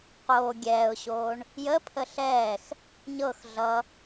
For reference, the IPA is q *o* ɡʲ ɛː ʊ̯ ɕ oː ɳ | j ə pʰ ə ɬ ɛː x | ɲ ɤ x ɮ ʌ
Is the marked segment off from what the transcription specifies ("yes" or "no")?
yes